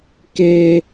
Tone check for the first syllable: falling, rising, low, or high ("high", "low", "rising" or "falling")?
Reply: high